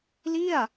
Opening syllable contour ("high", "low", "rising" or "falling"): falling